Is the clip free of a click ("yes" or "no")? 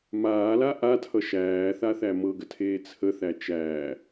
yes